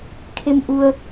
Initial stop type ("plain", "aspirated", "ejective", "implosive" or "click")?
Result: aspirated